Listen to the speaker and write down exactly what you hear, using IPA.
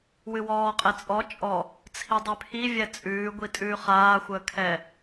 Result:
w ɨ w ɔː qʼ ɛ t͡sʼ ɔ t͡ʃʼ ɔ | t͡sʰ i dˤ ʉ pʰ i vʲ ɛ t͡sʼ ʉː ɡʷ i tʼ ʉː χ aː xʷ əː kʰ ɛ

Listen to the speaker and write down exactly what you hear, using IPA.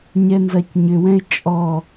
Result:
ɲ ɛ n z ɐ c ɲ ʏ w ɛ̃ ɪ̯ t͡ʃʼ ɔ

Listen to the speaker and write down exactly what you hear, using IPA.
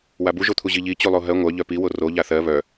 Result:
w a b u ʒ o t̪ʰ u ʑ i ʎ i t͡ɕ u lˠ o ɦ ɜ ŋʷ œ ʎ œ p i w o r o ʎ a θ ɜ β œ

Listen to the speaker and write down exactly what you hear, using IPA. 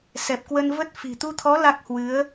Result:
s ɛ˨˩ p̚ k w ə˧ n v ə˦˥ t̚ f i̤˨˩ t̪ u˧ t̪ʰ ɔ˨˦ l a˦˥ k̚ h w ɨ˨˦ ə̯

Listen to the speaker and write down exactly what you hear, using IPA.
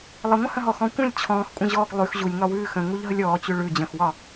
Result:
lˠ ə ŋʷ ə̃ h ə̃ ɦ ɔ x ɔ̃ kʷ ə̃ lʲ t͡ɕʰ ɔ̃ː x kʷʼ ə̃ ʑ ɔː ɡ lˠ ʉ x ʑ u lʲ ŋ ɒ w ʉː x ə̃ ŋ u ʎ ɦ ə lʲ ɔː t͡ɕ ʉ ɭ ʉ d͡ʑ ə̃ x w ɒ

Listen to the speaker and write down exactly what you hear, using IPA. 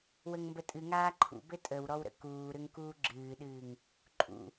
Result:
w ə ŋ m b ə tʼ ɨ ŋ aː ǃʰ ṵ b ɘ tʼ ə w ɾ ɔ w ɾ ə̰ k uː ɾ ʏ ŋ k uː ɡ͡ǁ ɨː ɗ ɨː ŋ | ǃʼ ṵ

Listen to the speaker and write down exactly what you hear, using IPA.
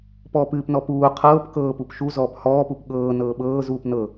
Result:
p ɔː p ɨː p n ɔ p uː qʰ ɤː p k ɤː p u p ʃ u z ɔː p h ɔː p u p ɠ ɤː n ɤː ɓ ɤː z uː p n ɤ

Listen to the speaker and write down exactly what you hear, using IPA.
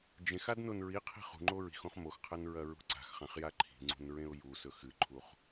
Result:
d͡ʒ ẽ x a d n o n ɹ i qʰ i̤ χ ṳ ŋ͡ǃ o ɹ i̤ x õ χ m o x qʰ ɐ n ɹ ɐ ɹ ṳ ǀ a̤ x χ ã χ j a ǃʰ i̤ ŋ͡ǀ ṳ n ɹ ẽ ʊ̯ j u s ɵ x ɨ ǃʰ u χ

